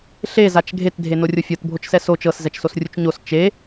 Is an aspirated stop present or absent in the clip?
absent